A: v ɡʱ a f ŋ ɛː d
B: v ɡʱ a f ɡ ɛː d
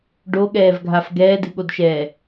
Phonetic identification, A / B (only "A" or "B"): B